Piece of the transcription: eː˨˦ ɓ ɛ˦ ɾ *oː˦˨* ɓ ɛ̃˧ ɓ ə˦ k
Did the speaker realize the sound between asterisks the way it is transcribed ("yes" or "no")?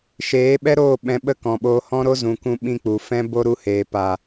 yes